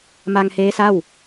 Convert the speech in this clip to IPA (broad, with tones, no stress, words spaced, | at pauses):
ma˧ŋheː˦˥sa˥˩w